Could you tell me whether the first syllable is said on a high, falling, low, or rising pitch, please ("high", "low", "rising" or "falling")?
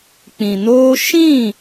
low